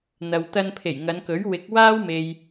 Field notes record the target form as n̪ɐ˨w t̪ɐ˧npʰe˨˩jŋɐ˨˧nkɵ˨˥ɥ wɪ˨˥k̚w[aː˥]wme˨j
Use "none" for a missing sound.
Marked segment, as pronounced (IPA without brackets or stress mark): aː˥